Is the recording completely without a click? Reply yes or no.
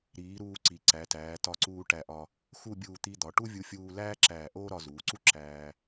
no